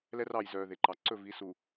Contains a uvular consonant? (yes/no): no